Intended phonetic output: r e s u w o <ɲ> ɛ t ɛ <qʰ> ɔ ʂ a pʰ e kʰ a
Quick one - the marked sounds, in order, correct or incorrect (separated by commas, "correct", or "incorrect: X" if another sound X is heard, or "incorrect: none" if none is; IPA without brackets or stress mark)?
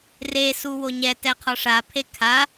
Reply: correct, correct